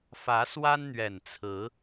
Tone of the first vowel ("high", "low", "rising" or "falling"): rising